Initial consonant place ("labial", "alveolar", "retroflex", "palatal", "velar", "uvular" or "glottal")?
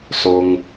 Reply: alveolar